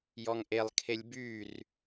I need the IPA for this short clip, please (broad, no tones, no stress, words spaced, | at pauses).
jɔŋʔelˠkʰelʲ byr